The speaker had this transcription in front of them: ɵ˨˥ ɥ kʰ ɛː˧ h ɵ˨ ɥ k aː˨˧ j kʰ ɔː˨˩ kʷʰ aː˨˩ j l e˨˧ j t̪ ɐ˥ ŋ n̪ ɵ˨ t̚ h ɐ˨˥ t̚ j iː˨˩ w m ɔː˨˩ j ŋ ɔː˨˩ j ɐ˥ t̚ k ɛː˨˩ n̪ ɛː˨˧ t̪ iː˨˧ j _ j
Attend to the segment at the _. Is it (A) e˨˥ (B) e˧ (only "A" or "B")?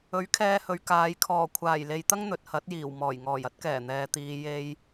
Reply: B